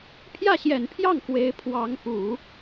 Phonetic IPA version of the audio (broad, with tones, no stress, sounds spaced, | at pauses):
pʰ j ä˥˩ ɕ j ɛ˨˩ n pʰ j ɑ˥˩ ŋ k w e˧˥ ɪ̯ pʰ w ɑ˧˥ ŋ p u˨˩˦